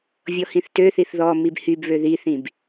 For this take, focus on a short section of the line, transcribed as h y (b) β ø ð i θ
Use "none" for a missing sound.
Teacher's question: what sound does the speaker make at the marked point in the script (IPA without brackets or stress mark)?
b